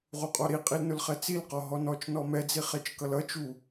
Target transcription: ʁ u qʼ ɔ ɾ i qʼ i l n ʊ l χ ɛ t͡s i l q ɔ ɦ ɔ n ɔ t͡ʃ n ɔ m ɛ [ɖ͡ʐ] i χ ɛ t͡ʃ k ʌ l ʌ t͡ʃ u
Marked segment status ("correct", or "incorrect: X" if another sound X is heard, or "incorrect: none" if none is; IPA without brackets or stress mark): incorrect: d͡z